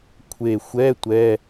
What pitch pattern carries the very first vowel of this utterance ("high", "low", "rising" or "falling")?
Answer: low